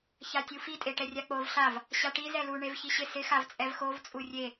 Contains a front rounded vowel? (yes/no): no